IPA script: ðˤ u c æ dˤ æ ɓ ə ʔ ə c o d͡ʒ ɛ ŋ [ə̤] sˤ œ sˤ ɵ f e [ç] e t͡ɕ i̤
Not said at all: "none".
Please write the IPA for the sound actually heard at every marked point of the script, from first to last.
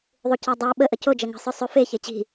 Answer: ə̤, ç

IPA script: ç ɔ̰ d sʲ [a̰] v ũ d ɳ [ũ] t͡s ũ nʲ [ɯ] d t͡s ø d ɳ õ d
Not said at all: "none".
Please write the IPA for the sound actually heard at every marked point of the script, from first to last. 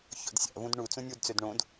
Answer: a̰, u, u

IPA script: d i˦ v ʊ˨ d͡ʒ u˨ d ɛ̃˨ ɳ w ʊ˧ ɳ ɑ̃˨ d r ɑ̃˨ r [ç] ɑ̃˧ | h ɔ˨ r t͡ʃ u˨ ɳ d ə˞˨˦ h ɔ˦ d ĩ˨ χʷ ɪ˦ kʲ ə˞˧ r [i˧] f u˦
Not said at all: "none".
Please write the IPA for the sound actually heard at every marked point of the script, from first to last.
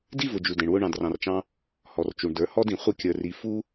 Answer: t͡ʃ, i˧

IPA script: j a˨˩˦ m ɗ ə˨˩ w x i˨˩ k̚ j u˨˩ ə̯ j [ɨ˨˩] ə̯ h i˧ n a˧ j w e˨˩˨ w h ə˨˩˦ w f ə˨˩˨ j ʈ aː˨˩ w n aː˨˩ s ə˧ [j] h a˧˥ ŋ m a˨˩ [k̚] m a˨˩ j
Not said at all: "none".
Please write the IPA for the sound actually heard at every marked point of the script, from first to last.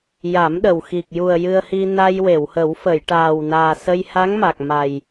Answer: ɨ˧, j, k̚

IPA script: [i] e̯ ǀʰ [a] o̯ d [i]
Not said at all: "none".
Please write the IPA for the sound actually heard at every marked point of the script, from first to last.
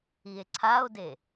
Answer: i, a, e

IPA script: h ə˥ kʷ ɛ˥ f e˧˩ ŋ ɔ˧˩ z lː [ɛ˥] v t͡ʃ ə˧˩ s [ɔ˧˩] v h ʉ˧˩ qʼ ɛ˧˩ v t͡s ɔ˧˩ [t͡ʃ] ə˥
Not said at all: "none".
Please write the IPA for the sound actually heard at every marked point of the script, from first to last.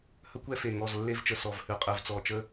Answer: e˥, ɔ˧˩, t͡ʃ

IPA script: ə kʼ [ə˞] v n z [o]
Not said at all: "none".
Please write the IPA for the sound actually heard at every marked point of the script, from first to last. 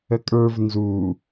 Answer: ə˞, u

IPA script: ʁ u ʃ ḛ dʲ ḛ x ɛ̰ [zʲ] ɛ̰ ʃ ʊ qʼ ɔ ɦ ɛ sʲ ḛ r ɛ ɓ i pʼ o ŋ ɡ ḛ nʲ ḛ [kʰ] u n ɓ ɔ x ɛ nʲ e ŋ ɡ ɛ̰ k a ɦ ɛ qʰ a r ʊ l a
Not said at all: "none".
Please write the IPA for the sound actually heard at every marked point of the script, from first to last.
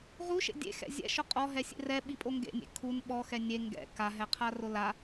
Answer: zʲ, kʰ

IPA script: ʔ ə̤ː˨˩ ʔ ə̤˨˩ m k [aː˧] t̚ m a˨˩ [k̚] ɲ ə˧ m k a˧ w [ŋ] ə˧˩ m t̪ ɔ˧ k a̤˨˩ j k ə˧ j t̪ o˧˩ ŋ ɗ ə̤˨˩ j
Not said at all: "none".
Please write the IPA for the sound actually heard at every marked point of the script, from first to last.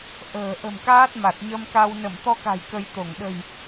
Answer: aː˦˥, t̚, n

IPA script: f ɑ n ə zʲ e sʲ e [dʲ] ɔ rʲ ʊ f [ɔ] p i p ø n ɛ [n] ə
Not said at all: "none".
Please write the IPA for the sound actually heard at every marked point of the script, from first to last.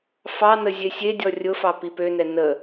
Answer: dʲ, ɑ, n

